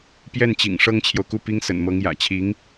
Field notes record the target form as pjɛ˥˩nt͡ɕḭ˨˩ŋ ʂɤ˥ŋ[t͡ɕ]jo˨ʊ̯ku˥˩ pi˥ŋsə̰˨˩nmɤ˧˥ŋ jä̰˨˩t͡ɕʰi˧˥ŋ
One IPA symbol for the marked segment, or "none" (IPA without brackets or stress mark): t͡ɕʰ